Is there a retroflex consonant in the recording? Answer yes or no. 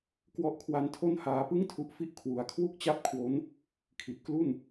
no